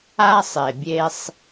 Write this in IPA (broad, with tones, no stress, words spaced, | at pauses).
a˦sˤe˨bʲe˦sˤ